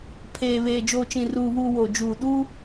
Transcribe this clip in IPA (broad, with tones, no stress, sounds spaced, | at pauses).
pʰ eː˨ β eː˨ d͡ʒ oː˨ t͡ʃ ĩ˨ r uː˨ β uː˨ w o˨ d͡ʒ uː˨ ɗ u˦